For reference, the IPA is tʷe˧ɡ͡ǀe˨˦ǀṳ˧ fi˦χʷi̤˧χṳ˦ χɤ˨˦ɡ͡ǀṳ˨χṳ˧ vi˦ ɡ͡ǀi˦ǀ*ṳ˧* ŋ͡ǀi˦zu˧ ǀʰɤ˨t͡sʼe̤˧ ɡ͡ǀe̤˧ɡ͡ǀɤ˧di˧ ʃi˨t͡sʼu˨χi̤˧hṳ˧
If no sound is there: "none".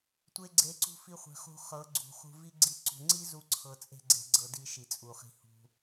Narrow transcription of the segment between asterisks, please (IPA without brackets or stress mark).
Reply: ṳ˧